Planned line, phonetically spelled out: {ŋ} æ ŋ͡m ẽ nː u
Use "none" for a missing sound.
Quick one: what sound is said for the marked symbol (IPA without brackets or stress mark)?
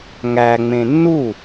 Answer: ŋ